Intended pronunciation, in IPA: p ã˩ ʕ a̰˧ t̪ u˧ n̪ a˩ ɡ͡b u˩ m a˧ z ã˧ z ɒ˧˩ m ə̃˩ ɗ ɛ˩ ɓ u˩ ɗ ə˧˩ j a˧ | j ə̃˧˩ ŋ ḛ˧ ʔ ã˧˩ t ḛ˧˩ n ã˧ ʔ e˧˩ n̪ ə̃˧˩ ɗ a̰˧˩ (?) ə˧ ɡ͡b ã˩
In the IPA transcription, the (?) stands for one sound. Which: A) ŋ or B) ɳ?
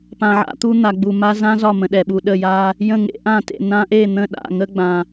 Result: A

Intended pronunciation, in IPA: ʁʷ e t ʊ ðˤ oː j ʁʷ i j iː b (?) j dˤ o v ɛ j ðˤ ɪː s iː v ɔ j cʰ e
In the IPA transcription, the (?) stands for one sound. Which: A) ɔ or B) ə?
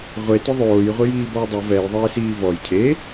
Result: A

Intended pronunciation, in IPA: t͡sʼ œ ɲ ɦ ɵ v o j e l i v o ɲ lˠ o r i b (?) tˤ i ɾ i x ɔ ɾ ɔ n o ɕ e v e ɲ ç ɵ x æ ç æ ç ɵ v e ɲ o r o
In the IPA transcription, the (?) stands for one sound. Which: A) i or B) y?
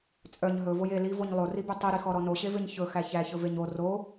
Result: B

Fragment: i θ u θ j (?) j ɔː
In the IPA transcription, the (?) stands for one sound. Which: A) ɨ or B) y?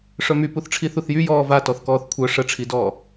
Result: B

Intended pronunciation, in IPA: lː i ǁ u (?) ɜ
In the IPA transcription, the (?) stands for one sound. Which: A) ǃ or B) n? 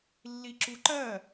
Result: A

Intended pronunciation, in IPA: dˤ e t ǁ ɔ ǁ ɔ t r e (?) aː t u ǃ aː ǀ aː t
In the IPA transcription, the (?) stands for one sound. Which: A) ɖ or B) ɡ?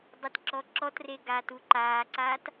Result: B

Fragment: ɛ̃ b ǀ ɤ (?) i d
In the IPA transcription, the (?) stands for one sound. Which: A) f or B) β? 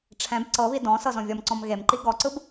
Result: B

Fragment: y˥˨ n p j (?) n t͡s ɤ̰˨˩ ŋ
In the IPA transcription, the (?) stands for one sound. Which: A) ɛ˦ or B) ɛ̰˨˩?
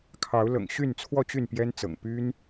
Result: A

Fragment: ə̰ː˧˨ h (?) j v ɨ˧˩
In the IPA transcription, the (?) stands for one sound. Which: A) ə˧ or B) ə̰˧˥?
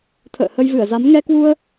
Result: A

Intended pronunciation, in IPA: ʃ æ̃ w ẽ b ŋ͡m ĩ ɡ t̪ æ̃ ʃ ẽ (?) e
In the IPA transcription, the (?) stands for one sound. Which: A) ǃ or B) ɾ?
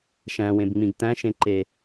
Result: A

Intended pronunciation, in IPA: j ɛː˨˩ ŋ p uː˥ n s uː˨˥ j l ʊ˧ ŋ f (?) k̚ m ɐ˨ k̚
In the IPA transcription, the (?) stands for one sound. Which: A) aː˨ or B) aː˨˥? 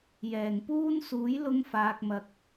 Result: A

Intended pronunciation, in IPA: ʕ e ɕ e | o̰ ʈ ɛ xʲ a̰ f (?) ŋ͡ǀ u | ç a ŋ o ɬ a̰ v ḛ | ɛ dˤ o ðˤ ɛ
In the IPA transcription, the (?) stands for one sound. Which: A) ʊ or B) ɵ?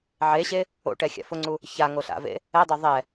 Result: A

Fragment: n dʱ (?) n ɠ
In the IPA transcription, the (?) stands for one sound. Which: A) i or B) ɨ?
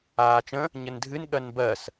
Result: B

